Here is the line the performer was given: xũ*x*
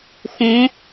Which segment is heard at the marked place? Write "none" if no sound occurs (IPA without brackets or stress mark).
none